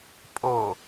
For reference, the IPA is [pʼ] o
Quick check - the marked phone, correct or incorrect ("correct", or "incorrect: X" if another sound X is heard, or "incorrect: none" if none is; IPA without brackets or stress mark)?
correct